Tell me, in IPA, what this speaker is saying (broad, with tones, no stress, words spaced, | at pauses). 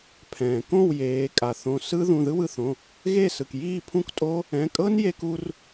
pʰɛ̃ː˩kõ˥˩wjeː˩˧ kʼa˩θõ˩˧˩ sɯ˦˥ ðũ˩˧˩ðɯ˦˥wɯ˧θõ˩˧˩ | ɣe˥˩sɯ˩k jiː˥˩pʰũ˦˥ktʼo˦˥ | ɛ̃˩˧˩kʼɤ˦˥n je˧ku˧r